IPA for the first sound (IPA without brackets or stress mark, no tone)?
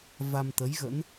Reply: v